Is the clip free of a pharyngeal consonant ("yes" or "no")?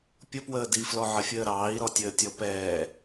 no